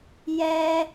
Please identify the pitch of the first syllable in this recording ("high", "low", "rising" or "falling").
high